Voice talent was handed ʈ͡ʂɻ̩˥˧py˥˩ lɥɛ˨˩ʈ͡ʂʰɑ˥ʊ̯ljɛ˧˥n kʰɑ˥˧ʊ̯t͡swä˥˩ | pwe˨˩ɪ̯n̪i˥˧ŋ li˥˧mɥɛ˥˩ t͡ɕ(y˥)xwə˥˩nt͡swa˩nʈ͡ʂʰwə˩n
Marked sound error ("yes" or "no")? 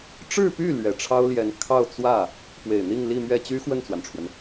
no